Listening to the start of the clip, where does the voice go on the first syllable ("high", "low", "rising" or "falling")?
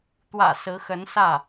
low